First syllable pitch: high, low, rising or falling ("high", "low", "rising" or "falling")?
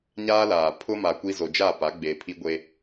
high